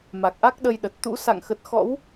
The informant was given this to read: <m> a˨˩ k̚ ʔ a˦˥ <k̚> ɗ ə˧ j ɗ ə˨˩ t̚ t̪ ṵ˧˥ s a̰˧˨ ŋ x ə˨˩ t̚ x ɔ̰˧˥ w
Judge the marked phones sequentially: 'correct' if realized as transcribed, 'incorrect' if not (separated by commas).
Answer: correct, correct